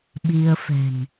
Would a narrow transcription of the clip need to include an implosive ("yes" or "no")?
yes